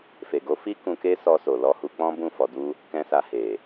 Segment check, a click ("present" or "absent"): absent